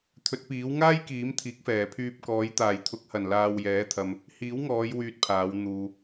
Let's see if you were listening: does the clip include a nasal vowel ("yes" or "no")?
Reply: no